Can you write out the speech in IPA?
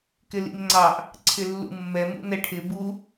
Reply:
k ɪ l ḭ m ŋ͡ǀ ɑ ʔ | ǀʰ ɪ lː ṵ mː ɛ m ṵ n ɛ ʈʰ ɪ b u

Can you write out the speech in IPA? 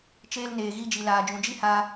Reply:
t͡ʃ eː˧ l n eː˨ ɣ i˧ d͡ʒ i˨ l aː˨ d͡ʒ ũ˨ d͡ʒ i˦ h aː˧

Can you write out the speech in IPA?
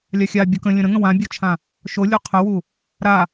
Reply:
lʲ a xʲ a bʲ o k ə̃ lʲ ə̃ ɾ ə̃ ŋ ə̃ w ã bʲ o t͡ʃʰ ã | ʃ o lʲ o qʰ ə w u | ɾ a

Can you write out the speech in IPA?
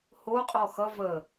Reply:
h o qʼ ɔ x ʌ v ə

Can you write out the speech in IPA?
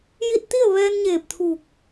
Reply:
j i˧ t̚ t̪ i˥˨ ə̯ ʋ ɛː˧ n ɲ eː˧˩ p̚ t̪ʰ uː˧˩ k̚

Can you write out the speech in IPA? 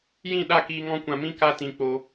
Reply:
j ĩ˦˨ ɗ a˦˨ k iː˧ ŋ ɔ̃˦ kʷ ã˧ m ĩ˦ k a˦ t ĩ˧ k͡p o˧

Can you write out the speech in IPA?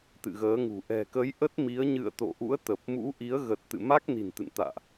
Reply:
t̪ ɨ̰˧˨ ɣ əː˨˦ ŋ ṳ˨˩ ʔ ɛ̤˨˩ k ə˨˦ j ʔ ə˦˥ t̚ m i˨˦ ə̯ ɲ ɨ̰˧˨ ə̯ t̪ o̰˧˨ ʔ ṵ˧˥ ə̯ t̪ ə˨˩ p̚ m ṵ˧˥ ʔ i˨˦ ə̯ ɣ ə˨˩ t̚ t̪ ɨ̰˧˨ m a˦˥ k̚ n i̤˨˩ n t̪ ɨ̰˧˨ n t̪ a̰ː˧˨ ʔ

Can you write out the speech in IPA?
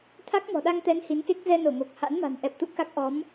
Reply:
t̪ʰ a˦˥ k̚ m ɔ̤˨˩ ɗ a˧ ŋ t̪ ɛ˨˦ n h i˨˦ n k e˦˥ k̚ z ɛ˧ n o˧˩ ŋ o˨˩ k̚ h a̰˧˥ n m a̤˨˩ n ʔ ɛ˨˩ p̚ t̪ ṵ˧˨ k a˦˥ k̚ ʔ ɔ˨˦ m

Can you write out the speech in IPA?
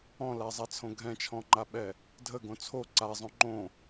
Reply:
ɔ̃ l a zˤ a t͡sʰ õ ɡʱ ɛ̃ t͡ʃʰ ɔ̃ ŋ͡ǃ a ɓ ɛ | dʱ ə ɡ õ t͡sʰ o ǀ a zˤ õ ŋ͡ǃ õ

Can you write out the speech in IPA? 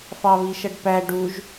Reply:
f ɑ β i ʃ ʌ ɖ p æ ɖ u ʒ

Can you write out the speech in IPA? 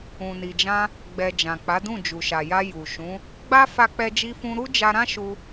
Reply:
ũ˨ n i˨ d͡ʒ ã˧ | ɡ͡b ɛ˨ d͡ʒ ã˨ k͡p a˨˦ d ũ˦˨ d͡ʒ u˨ ʃ a˨ j a˧ j u˨ ʃ ũ˨˦ | ɡ͡b a˦ f a˧ k͡p ɛ˧ d͡ʒ i˧ f ũ˧ ɾ u˦ d͡ʒ a˧ ɾ ã˦ ʃ u˧

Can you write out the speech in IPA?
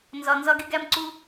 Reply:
n z ɒ˧ n z ɒ˦ ɡ e˦ ɡ æ˦ m ǀ u˦

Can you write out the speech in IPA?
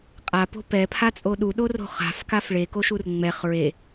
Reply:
qʼ a p o̤ p ɛ pʰ a t͡sʼ o ɗ u ɗ o r o̤ χ a̤ f k a f ɭ e k o ʃ u r ŋ͡m ɛ χ ɹ e

